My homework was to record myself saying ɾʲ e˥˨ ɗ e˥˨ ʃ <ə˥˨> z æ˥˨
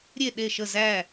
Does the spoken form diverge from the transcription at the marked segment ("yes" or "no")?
no